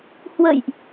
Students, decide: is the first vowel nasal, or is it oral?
oral